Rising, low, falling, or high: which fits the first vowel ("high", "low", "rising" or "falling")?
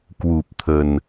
low